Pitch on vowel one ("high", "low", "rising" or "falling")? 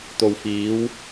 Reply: low